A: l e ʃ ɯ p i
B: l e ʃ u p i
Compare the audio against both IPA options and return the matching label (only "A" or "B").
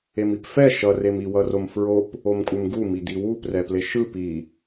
A